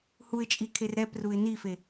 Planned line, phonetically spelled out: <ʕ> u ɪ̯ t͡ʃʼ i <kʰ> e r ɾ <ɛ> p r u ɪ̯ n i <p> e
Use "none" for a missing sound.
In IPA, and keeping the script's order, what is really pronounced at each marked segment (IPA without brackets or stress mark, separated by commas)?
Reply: h, kʰ, ɛ, f